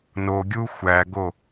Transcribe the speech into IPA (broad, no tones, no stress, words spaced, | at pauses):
noɡʲu xʷæɡo